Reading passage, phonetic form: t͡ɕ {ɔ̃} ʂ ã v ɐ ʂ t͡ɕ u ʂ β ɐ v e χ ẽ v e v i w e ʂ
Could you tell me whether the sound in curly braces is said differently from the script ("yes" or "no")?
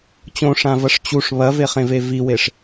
yes